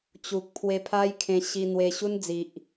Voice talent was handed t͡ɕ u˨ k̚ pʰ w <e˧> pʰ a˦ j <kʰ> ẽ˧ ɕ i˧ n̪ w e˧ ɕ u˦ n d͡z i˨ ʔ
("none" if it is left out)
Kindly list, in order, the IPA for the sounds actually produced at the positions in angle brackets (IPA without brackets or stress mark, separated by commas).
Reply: e˧, kʰ